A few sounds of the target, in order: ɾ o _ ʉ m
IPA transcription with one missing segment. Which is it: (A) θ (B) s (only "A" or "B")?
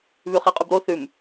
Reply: A